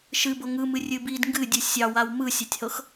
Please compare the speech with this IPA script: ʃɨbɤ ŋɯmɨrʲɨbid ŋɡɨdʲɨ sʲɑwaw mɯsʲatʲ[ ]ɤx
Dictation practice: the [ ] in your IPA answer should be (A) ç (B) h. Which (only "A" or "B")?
B